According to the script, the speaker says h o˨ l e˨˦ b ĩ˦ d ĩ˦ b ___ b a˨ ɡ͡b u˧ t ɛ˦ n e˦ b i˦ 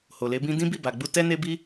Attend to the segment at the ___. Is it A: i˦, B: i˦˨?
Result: B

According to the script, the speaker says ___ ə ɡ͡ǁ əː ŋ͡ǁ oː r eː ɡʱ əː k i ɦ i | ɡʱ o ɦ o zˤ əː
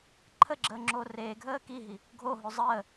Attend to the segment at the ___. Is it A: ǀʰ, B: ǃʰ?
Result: B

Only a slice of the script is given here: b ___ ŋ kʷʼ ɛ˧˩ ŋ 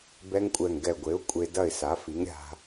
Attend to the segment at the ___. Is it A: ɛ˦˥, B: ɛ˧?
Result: A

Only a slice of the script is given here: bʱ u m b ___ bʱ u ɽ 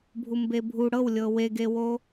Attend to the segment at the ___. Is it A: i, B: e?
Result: B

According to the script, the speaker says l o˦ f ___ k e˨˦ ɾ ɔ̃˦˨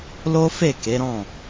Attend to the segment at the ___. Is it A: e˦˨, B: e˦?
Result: A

